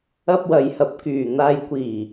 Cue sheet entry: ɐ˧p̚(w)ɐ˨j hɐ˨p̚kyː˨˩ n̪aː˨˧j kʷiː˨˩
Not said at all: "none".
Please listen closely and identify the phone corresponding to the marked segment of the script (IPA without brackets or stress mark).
w